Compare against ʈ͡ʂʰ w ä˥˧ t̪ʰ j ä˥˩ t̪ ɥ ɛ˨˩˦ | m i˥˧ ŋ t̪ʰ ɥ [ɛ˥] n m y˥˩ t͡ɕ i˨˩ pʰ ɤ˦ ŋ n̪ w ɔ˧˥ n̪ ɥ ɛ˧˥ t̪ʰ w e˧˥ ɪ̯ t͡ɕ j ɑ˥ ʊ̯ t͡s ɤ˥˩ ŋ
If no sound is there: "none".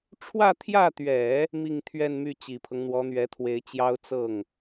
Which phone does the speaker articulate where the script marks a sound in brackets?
ɛ˥˧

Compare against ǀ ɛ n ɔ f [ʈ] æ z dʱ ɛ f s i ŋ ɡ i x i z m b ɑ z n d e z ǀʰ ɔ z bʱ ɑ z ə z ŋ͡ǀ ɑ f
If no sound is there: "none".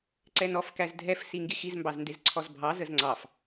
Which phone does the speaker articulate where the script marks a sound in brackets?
k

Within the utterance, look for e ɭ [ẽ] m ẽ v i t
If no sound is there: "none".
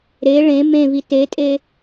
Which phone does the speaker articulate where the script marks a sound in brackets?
ẽ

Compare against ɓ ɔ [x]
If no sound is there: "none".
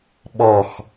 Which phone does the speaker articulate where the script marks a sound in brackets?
x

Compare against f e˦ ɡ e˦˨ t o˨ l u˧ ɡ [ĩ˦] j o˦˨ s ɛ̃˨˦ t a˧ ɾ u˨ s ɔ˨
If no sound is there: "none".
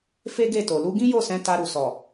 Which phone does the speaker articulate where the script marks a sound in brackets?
ĩ˦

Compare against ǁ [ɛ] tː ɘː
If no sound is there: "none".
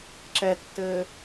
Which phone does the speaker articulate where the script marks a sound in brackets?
ɛ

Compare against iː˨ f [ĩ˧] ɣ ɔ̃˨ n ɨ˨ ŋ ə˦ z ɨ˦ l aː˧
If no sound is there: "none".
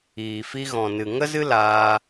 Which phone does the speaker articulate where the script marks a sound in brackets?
i˧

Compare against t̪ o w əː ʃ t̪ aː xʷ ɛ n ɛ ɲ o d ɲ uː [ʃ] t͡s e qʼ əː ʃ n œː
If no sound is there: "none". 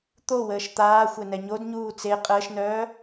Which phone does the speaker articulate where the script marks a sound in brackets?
none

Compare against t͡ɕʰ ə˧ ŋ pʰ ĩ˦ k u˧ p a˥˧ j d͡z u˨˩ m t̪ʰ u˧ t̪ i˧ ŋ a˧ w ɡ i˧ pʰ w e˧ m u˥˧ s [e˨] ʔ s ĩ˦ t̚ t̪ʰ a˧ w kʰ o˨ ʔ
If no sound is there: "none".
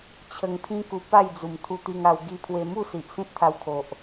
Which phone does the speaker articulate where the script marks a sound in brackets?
i˨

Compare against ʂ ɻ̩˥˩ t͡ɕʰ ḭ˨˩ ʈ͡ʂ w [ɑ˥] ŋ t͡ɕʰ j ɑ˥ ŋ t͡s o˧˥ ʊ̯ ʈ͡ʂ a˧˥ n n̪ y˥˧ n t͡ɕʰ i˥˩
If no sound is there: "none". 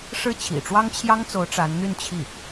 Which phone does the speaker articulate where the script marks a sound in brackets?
ɑ˥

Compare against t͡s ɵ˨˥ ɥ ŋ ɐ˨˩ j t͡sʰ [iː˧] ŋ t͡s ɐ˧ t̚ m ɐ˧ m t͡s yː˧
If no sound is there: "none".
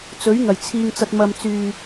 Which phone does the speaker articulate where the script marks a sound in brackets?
iː˧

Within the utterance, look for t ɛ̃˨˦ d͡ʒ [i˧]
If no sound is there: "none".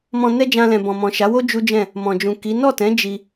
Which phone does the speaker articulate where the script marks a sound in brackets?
i˧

